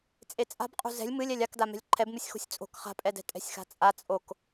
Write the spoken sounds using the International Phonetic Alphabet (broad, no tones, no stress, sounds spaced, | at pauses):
t͡sʼ e t͡sʼ a̤ b qʼ ṳ z ɛ̤ lʲ m ɨ lʲ ɛ lʲ a k d a m ɛ̤ lʲ ǃʰ ɛ b m ɨ sʲ x o̤ sʲ t͡sʼ o̤ k χ a̤ pʼ ɛ d ɛ̤ tʼ ɛ̤ sʲ x a̤ t͡sʼ a t͡sʼ o k